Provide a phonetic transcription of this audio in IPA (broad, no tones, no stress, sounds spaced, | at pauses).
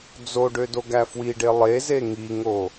d͡z o ɖ ø d o ɡ æ f w i ɖ e lˠ e z e ŋ i ŋ o